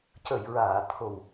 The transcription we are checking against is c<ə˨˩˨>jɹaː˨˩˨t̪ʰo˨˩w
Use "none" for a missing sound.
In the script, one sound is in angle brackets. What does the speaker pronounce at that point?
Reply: ə˨˩˨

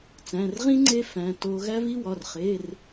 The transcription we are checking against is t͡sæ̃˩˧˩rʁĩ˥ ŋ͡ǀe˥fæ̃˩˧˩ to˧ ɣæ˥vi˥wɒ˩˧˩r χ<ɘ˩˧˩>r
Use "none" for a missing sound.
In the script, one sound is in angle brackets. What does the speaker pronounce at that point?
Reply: e˩˧˩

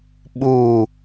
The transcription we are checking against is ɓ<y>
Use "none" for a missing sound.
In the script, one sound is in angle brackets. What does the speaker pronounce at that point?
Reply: u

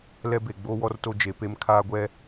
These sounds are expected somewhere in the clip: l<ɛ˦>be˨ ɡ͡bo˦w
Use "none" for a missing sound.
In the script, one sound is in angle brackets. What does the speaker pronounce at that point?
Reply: ɛ˦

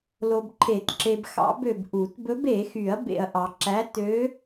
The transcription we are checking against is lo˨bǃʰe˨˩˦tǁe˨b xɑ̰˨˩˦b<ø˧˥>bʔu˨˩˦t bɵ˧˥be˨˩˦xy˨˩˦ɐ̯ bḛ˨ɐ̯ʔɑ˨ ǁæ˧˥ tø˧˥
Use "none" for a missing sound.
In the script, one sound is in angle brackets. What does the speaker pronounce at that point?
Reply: ø˨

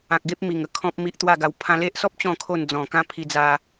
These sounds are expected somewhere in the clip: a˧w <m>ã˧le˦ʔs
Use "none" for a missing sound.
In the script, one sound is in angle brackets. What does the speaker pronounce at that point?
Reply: pʰ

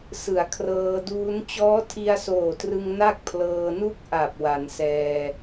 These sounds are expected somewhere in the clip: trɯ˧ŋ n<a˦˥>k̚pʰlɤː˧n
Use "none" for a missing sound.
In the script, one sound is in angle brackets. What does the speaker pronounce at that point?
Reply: a˥˩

